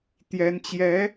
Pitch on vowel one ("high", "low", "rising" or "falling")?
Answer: rising